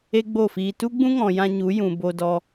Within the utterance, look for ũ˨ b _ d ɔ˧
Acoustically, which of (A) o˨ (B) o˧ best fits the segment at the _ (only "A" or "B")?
B